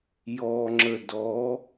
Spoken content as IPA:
j ɔ ŋ͡ǁ ə d ɔ

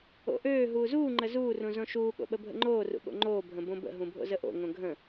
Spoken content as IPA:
o̰ ʔ øː ɦ uː z uː ŋ͡ǃ ə z uː r ũ z õ ʃ uː ɠ o̰ ɓ ə bʱ ə̰ ŋ͡ǃ oː r ṵ ɠ o̰ ŋ͡ǃ oː bʱ ə̃ b õ b ə̰ ɦ ũ bʱ o̰ z ə ʔ o̰ ŋ õ ɡʱ ə̃

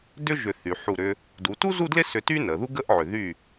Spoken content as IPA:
d ʏ˥ ʒ ʏ˧˩ θ y˩˧ ħ u˧˩ ɾ ʏ˧ | d u˩˧ t u˥ z u˥˧ d l ɪ˥˧ s ʏ˧ t y˥ n ə˩˧ ð u˥ ɡ ə˥ ʔ ʕ ʏ˧˩ ð y˧˩

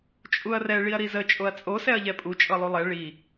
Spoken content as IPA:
t͡ʃʼ u ɐ̯ r ɛ ɭ i ɐ̯ ɾ i z ə t͡ʃʼ o ɐ̯ t͡sʼ o s ɛ ɐ̯ ʎ ɛ pʼ u t͡ʃʼ ɤ lˠ u lˠ ɛ ɭ i

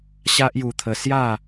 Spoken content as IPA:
ɕ a˦ ʔ j u˧ t̪ʰ ə˧ s j a˥˧

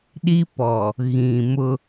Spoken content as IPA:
ɗ i˦ p ɔ˨ | ɣ ĩ˨ m ʊ˦

